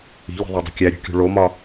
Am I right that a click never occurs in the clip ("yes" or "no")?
yes